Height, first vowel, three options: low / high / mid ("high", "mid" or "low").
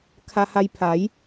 low